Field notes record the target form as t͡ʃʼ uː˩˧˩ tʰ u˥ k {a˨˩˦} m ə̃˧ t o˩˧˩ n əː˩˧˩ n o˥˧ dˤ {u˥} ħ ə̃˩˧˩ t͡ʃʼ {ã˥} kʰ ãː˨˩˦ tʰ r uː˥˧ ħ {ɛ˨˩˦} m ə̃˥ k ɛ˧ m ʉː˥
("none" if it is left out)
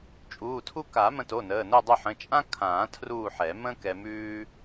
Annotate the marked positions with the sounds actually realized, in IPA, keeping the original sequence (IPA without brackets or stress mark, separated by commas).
a˨˩˦, u˥˧, ã˥, ɛ˨˩˦